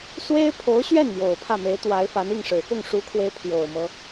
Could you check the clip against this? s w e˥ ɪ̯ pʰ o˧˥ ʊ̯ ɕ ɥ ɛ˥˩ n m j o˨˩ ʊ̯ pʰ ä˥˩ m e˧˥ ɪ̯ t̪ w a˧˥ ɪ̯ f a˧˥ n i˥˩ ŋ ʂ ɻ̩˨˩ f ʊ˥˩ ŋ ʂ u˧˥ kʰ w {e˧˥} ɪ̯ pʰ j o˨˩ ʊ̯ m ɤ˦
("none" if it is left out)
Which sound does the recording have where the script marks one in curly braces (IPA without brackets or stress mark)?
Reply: e˧˥